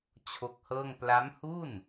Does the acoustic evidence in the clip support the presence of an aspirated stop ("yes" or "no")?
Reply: yes